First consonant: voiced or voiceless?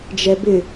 voiced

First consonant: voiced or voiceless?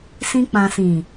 voiceless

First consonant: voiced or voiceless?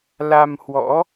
voiced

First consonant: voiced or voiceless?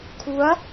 voiceless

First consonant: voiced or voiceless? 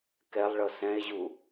voiceless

